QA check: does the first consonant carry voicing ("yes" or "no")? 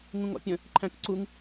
yes